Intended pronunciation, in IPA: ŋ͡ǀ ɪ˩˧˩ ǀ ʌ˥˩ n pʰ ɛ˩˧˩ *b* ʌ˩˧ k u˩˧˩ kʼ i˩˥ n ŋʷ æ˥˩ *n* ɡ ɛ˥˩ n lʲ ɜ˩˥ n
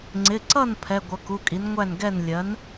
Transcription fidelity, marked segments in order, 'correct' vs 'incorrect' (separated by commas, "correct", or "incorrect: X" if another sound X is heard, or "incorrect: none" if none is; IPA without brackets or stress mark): incorrect: ɡʷ, correct